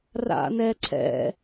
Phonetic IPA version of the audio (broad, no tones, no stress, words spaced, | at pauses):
ra̰nɛǀʰɛ̰